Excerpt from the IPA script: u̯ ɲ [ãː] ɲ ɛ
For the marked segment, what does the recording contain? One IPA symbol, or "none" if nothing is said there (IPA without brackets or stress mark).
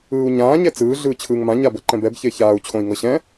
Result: ãː